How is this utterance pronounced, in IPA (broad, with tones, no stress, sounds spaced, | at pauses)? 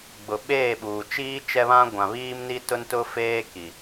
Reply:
ɡ͡b ʊ˨ ɓ eː˦˨ ɓ uː˨ t͡ʃ iː˦ t͡ʃ ɛ˦ β ã˦ ɡʷ ã˨ β iː˦ m n i˦ t ʊ˦ n t ʊ˦ f eː˦ k i˨